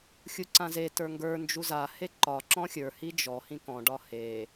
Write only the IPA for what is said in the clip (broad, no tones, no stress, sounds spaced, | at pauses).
xʲ u ǀ ã z e t ə˞ ŋ ɡ ə˞ n d͡ʒ u z a h e ǃ ɒ ǁ ɔ̃ xʲ ə˞ h i d͡ʒ ɔ h ĩ k ɔ̃ ɖ ɒ h e